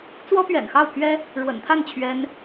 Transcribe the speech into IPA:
t͡s w ɔ˥ p ɥ ɛ̰˨˩ n x ɑ˥˩ ʊ̯ pʰ ɥ ɛ˥ | ɻ w ə̰˨˩ n t̪ʰ a˥˩ n t͡ɕʰ ɥ ɛ˥ n

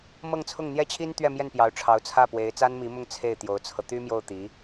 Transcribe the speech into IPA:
m ɤ˥˧ ŋ t͡sʰ ʊ˥˩ ŋ n̪ j ɛ˥ t͡ɕʰ i˥ n t̪ ɥ ɛ˥˧ m j ɛ˥˩ n p j ɑ˧˥ ʊ̯ ʈ͡ʂʰ ɑ˧˥ ʊ̯ t͡sʰ ä˥˩ p w e˧˥ ɪ̯ t͡s a˥ n m i˧˥ m ʊ˥˧ ŋ t͡sʰ e˥˩ ɪ̯ t̪ j o˧˥ ʊ̯ t͡sʰ ɤ˧ t̪ y˥ m j o˥˩ ʊ̯ t̪ i˧˥

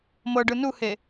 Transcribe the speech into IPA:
m ɤ ɖ ɯ n u h e

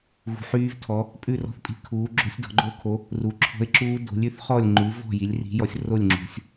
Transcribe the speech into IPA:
ɣ ṳ˨˥ ħ yː˦˥ v tʰ ɔ˨˥ | pʼ ʉ˥˨ r ɔ̤˥˨ θ pʼ i̤˦˥ kʰ uː˨˥ ɡ͡ǁ o̤˦˥ sʲ d ɔ̤˨˥ ɡ͡ǃ o˦˥ kʰ o˨˥ | r u˨˥ ǁʰ ɔ̤˦˥ ɪ̯ ǁ uː˦˥ d o̤˨˥ lʲ ʉ˨˥ θ χ ɔ˥˨ lʲ ŋ͡ǃ ʉ˨˥ v ɔ̤˥˨ j i˨˥ lʲ r i̤˨˥ j ɔ˨˥ sʲ r o˥˨ lʲ ŋ͡ǁ ṳ˨˥ sʲ

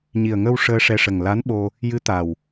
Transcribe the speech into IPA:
ɲ i˨˩ ə̯ ŋ ə˧ w ʂ əː˧ ʂ ɛ˧ ʂ ə˨˩ ŋ l a˧˥ n ɓ o˧ | j ɨ˧˥ t̪ a˨˩ w

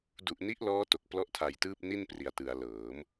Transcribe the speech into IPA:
d u˨˩ ʔ n i˦˥ ʔ l ɔː˦˥ t o˨˩ k̚ p l ɔ˥˩ ʔ tʰ a˧ j t ɯː˥˩ p̚ n i˥˩ n p r i˨˩ a̯ t ɯ˩˦ a̯ l ɤː˩˦ m

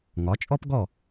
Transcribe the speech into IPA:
ŋ ɒ˩˥ t͡ʃʼ ɔ˥ p ɡ ɔ˥˩

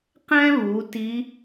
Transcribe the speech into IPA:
q ɛ̃˥ β u˩˧ t i˧˥

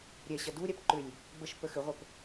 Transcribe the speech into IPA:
ɾʲ ɛ ɕ ɐ d u ɾʲ a p ǃ ʏ lʲ | b ə ʃ p ə x ʏ ʁʷ ə p

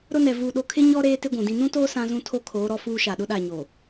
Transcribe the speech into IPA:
ɾ ʊ˦ n ɛ˨ v uː˨ ɗ o˨ kʰ ɪ˦ ɲ ɔ˦ ɾ eː˦ t ɪ˦ ɡʷ ũ˨ d ĩ˦ n ũ˦ t oː˦ s ã˦ z ũ˦ tʰ o˦ kʰ oː˨˦ ɾ ɔ˦ f uː˦ ʃ a˨ ɗ ʊ˦ ɗ a˦˨ ɲ oː˨

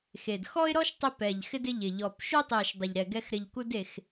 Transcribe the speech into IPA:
x e˨˩ d x ɔ˦ ɪ̯ ɾ ɔ˦ ʃ tˤ ɪ˦ p ɛ˨˩ ʎ x ɪ˦ d ɪ˦ ʎ ɪ˨˩ ʎ ɔ˨˩ p ʃ u˦ tˤ i˨˩ ʃ dˤ ɪ˨˩ ʎ ɾ ɛ˨˩ ɡ ɛ˦ x ɾ ɪ˨˩ ʎ k u˦ d e˨˩ x

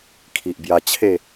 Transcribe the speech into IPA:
kʰ i˨ ʔ b j a˧ t͡ɕʰ e˥˧

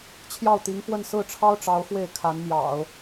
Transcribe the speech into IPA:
t͡ɕʰ j ɑ˥˩ ʊ̯ t̪ i˧˥ ŋ f w ə˥˧ n s ɹ̩˥˩ ʈ͡ʂʰ ɑ˥ ʊ̯ ʈ͡ʂ ɑ˧˥ ʊ̯ x w e˥˩ ɪ̯ kʰ a˧˥ n m j ɑ̰˨˩˦ ʊ̯

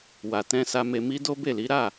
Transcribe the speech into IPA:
w a˨ t ɛ̃˧ s a˧ m e˧ m i˦ d o˦ b e˦˨ l i˨˦ ɾ a˦˨

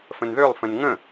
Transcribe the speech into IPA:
f ə̃ n ð ø lˠ f ə̃ n ŋ ə̃

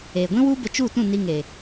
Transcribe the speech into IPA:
eː˨ ɡʷ ĩ˦ w u˦ b ə˧ t͡ʃ u˦˨ t ũ˦˨ n i˧ ŋ e˨

